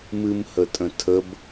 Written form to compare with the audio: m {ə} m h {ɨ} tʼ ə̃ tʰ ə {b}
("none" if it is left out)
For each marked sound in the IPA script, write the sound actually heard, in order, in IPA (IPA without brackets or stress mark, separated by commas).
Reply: ɨ, ə, b